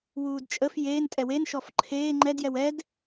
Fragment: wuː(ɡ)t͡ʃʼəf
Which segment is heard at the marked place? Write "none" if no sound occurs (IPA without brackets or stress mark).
d